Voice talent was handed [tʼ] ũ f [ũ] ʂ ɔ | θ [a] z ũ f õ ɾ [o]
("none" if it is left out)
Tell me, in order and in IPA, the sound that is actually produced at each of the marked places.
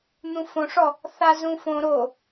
n̪, õ, a, o

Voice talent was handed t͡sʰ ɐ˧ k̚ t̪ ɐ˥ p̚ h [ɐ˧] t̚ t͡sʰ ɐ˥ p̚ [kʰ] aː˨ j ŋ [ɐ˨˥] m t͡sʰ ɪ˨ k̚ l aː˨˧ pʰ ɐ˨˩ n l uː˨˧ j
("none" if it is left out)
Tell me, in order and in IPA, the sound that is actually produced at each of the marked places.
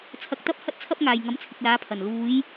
ɐ˥, ŋ, ɐ˨˥

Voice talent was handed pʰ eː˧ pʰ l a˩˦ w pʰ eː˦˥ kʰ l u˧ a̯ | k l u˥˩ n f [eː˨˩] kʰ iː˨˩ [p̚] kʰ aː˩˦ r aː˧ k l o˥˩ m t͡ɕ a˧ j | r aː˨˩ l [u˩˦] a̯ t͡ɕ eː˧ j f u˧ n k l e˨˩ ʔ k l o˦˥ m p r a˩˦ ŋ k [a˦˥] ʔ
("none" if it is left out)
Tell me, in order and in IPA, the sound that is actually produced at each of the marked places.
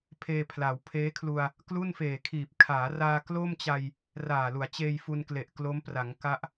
eː˨˩, p̚, u˩˦, a˦˥

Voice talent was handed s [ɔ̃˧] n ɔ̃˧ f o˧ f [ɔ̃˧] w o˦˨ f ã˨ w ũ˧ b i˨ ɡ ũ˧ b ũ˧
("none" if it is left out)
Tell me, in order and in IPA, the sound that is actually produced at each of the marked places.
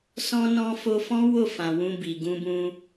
ɔ̃˧, ɔ̃˦

